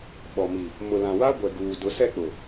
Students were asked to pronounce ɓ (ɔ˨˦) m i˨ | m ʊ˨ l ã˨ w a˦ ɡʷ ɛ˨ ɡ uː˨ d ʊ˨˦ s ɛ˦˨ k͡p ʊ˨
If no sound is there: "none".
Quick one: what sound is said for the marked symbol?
ɔ˨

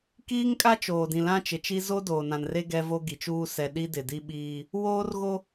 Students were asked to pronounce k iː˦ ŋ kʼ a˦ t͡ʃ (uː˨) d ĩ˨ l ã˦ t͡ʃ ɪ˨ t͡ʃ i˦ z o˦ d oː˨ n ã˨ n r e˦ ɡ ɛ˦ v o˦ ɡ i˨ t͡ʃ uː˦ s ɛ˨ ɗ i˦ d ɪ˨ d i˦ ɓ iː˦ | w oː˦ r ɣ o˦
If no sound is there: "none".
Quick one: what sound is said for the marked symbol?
oː˨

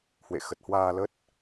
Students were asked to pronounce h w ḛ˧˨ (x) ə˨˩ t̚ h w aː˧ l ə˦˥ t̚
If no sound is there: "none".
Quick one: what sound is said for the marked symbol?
x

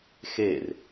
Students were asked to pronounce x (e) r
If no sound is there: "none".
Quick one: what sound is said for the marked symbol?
e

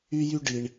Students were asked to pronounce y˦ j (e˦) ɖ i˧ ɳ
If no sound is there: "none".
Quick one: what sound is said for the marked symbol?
y˦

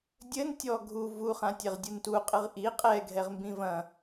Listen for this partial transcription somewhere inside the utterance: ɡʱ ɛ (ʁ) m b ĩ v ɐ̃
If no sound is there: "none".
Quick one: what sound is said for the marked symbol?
ʁ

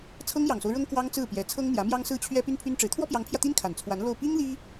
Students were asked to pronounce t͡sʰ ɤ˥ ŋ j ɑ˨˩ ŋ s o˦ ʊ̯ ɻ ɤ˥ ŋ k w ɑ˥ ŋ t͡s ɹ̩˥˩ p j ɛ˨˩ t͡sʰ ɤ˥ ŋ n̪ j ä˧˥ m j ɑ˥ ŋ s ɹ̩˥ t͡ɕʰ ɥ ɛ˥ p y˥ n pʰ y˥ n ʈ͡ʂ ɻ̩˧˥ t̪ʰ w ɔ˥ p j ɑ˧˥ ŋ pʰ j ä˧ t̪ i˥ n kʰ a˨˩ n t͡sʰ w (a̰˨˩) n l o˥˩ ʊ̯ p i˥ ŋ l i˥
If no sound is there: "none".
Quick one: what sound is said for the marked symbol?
a˧˥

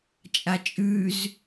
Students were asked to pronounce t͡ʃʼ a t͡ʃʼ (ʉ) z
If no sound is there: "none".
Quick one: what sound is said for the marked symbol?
ʉ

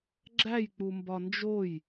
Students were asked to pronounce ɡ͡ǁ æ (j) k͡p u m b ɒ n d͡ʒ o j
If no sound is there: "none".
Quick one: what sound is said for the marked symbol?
j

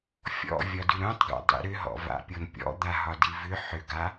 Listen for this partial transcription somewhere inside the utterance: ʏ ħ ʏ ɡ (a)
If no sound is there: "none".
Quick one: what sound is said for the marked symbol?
a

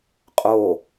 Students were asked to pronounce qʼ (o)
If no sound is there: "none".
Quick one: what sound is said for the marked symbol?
o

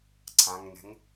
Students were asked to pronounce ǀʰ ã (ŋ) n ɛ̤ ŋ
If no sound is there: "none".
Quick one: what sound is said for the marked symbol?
ŋ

